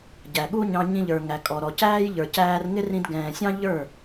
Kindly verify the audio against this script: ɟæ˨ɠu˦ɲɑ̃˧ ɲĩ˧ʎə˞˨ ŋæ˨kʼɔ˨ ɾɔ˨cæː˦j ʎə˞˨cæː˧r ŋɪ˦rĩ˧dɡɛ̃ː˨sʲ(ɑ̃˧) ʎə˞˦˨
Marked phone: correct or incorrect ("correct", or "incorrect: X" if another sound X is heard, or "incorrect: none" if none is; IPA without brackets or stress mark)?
incorrect: ɑ̃˦